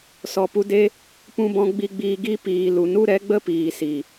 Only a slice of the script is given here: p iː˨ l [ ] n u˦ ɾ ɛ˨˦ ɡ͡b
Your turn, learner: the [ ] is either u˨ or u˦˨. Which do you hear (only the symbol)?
u˨